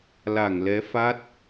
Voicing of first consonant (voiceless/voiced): voiced